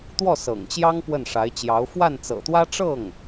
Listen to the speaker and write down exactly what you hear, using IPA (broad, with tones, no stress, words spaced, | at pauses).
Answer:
t̪wɔ˥˩ sɤ̰˨˩ŋt͡ɕjɑ˥ŋ pwə˥˩nʂa˧˥ɪ̯t͡ɕjɑ˧˥ʊ̯ fwa˥˩nt͡sɤ̰˨˩t̪wä˥ ʈ͡ʂɤ˥˩ŋ